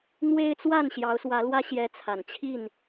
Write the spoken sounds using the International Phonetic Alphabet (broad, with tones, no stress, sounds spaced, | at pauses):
n̪ w e˦ ɪ̯ t͡s w a˥˨ n ɕ j ɑ˨˦ ʊ̯ s w ä˨˦ l w ä˦ ɕ j ɛ˨˦ t͡sʰ a˨˩ n t͡ɕʰ i˥˨ n